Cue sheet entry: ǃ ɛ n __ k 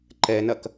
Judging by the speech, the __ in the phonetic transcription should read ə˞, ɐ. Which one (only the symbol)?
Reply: ɐ